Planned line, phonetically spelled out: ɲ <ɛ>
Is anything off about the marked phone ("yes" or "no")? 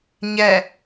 no